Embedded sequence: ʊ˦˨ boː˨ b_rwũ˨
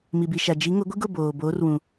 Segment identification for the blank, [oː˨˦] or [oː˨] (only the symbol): oː˨˦